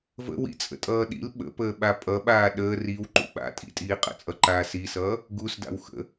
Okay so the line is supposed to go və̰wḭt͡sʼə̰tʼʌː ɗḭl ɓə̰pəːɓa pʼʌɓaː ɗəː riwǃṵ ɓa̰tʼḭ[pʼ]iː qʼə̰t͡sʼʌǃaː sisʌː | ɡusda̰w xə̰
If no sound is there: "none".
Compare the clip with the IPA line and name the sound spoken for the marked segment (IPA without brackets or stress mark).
tʼ